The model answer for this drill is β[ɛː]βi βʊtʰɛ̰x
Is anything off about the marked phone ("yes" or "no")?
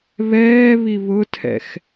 no